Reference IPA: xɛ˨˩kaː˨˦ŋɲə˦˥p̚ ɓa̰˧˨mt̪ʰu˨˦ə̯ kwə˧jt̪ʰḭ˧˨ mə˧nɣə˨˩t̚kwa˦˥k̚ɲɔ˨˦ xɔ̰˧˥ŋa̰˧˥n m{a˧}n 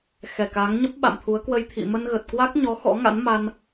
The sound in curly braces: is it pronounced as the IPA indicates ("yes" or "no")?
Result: yes